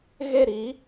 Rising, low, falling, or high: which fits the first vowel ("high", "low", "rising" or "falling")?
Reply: falling